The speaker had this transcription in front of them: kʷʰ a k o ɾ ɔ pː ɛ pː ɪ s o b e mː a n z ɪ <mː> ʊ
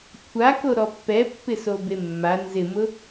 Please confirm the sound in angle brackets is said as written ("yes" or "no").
no